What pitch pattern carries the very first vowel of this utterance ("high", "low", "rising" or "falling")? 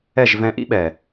falling